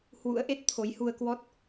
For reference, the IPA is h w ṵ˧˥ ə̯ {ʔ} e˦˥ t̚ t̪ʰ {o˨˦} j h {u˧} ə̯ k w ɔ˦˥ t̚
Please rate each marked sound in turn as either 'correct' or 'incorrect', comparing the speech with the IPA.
correct, correct, correct

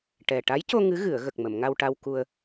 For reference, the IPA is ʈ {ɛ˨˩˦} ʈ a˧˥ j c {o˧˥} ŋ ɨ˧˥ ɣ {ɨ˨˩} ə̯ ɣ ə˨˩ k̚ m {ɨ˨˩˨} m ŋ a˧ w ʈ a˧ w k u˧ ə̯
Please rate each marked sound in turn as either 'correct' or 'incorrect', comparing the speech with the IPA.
incorrect, incorrect, incorrect, incorrect

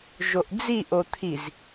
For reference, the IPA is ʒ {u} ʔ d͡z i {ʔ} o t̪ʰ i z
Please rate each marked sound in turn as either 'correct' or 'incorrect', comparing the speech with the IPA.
incorrect, correct

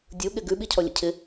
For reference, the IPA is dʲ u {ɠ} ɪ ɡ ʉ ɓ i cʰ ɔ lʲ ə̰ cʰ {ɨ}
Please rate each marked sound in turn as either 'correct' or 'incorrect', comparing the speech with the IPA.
correct, incorrect

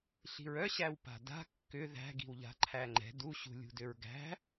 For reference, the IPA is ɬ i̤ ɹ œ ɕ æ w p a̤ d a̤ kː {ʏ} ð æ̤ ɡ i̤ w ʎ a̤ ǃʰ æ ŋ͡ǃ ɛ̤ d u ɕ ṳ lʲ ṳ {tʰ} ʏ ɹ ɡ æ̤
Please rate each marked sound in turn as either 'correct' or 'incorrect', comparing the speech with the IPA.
correct, incorrect

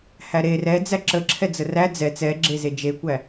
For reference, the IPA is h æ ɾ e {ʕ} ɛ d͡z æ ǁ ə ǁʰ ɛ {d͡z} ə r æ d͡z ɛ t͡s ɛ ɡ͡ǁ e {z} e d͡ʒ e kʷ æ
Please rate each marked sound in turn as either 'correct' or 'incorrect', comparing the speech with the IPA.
incorrect, correct, correct

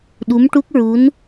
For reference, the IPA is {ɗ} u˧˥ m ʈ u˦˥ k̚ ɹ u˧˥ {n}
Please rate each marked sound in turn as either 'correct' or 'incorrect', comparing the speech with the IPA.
correct, correct

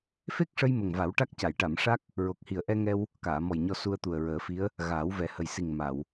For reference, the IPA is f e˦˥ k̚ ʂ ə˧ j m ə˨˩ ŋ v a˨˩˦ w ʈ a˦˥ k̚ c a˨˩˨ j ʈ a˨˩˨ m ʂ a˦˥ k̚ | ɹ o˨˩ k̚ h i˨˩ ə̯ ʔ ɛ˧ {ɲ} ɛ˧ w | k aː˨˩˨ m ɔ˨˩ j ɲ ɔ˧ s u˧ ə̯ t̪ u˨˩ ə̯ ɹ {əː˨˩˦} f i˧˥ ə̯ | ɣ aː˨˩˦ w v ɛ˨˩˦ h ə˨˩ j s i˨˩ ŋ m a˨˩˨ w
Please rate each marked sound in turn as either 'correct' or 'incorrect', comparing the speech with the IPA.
incorrect, correct

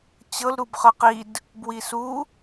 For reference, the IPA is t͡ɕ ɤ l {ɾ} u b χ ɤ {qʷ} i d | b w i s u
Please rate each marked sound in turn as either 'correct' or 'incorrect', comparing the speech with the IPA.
correct, incorrect

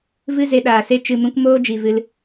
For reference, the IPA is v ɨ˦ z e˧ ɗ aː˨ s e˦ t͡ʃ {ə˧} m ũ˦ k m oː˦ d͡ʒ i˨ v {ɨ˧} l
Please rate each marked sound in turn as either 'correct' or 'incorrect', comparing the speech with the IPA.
incorrect, correct

